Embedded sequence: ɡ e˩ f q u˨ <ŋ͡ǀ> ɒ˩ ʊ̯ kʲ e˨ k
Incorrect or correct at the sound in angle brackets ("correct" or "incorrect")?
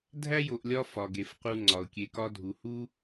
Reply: correct